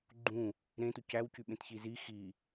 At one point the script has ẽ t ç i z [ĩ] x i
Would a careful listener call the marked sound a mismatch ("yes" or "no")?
yes